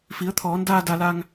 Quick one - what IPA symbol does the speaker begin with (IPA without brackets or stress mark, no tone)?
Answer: f